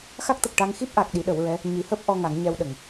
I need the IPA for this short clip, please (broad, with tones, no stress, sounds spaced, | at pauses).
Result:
x a˦˥ k̚ t̪ ə˨˩ k̚ ʈ a˧ ŋ x i˦˥ p̚ ʔ a˨˩ k̚ ɗ i˨˩˦ ɗ ə˨˩˦ w ɹ ɛ˧˥ | ɲ i˨˩˦ h əː˦˥ p̚ ʔ ɔ˧ ŋ a˨˩˦ ŋ ɲ ɛ˧ w ɗ ə˨˩˨ ŋ